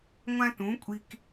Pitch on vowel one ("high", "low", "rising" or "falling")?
high